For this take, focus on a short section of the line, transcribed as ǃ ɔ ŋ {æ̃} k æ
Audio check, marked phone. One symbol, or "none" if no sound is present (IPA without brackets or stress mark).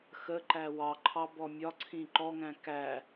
æ̃